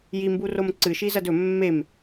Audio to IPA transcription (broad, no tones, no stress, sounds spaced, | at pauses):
j i m b u r o m ǀ ɨ ʃ i z ɐ d ɵ mː e m